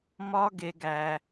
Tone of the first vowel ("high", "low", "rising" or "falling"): high